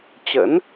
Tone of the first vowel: rising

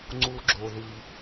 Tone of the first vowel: low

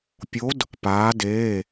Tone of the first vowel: rising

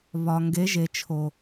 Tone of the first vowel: low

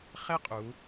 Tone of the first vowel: high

